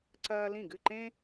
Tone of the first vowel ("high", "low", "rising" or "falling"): high